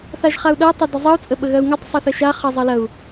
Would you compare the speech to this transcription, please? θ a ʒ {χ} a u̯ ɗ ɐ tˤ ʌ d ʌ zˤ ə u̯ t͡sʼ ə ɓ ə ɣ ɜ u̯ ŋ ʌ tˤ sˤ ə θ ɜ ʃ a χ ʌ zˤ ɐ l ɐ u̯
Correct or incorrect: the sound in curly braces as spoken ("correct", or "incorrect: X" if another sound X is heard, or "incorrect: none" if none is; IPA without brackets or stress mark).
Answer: correct